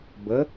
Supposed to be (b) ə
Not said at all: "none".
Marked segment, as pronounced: b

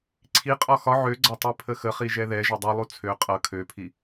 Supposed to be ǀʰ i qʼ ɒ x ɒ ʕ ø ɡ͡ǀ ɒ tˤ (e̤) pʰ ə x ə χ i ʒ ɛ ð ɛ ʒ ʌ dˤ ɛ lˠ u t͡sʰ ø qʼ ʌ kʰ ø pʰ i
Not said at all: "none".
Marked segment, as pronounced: e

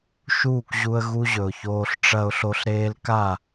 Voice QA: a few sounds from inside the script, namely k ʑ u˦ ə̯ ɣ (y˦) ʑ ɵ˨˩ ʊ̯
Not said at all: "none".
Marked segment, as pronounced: u˦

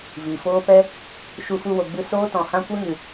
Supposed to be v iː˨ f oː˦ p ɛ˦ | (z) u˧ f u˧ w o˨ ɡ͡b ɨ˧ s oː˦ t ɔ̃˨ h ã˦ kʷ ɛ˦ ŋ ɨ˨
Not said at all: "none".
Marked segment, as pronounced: ʃ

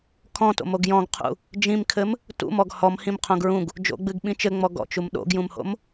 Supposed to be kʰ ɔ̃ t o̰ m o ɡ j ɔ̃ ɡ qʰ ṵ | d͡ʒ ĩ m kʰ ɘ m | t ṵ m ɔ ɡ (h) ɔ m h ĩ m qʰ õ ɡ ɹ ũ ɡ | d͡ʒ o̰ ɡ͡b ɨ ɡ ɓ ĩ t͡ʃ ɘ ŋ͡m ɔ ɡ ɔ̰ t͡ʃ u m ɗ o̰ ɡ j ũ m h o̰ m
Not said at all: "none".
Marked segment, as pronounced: h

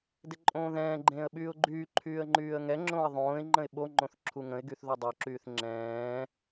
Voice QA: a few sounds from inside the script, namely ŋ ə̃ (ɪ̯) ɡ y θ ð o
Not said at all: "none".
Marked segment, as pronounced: ɪ̯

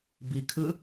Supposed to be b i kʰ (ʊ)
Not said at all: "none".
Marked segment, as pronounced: ɯ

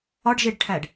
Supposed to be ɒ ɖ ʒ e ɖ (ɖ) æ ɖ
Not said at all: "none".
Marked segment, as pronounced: ʈʰ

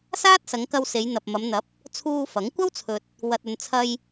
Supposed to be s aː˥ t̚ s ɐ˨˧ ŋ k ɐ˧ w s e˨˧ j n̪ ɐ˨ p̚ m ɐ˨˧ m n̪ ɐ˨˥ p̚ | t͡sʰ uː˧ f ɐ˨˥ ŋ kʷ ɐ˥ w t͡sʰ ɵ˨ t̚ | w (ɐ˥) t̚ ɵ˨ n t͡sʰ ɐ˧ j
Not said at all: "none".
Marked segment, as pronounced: ɐ˨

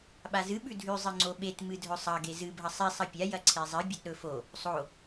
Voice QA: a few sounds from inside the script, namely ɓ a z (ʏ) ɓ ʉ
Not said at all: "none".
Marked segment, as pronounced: ɨ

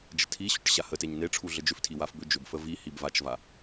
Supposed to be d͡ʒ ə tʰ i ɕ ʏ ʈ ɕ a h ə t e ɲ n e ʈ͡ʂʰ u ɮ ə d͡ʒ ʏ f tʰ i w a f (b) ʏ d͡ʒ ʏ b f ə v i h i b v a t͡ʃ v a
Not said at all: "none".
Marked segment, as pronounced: b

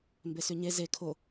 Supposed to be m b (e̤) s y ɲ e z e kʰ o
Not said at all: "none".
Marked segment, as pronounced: e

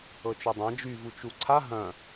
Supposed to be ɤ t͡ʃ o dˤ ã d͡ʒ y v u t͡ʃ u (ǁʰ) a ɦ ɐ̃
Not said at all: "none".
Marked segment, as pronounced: ǀʰ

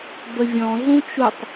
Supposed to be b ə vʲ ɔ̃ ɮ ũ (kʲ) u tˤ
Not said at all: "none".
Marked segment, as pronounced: t͡ʃ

